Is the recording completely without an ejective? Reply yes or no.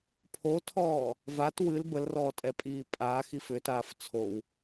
no